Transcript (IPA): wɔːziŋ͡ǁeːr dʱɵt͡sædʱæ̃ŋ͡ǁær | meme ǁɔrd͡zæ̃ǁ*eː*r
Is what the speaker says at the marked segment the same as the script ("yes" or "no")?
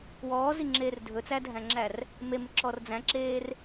yes